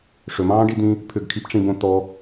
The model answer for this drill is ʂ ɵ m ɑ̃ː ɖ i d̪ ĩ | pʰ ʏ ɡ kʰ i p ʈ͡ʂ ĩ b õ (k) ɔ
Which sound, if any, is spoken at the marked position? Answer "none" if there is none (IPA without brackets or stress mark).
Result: t̪